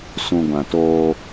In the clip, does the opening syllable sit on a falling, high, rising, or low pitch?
low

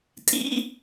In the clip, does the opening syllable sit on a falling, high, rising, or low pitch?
high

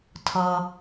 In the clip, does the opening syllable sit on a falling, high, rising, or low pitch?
low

